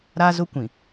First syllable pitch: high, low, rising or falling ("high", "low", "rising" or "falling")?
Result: high